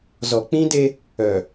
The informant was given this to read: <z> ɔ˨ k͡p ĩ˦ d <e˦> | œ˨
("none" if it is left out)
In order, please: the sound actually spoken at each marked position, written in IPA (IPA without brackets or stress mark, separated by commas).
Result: z, e˦